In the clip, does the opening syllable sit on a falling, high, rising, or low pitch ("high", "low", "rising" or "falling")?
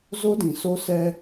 high